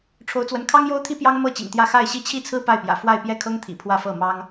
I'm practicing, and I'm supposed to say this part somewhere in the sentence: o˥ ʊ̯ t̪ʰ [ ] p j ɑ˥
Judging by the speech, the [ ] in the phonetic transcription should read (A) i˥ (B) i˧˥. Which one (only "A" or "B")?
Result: A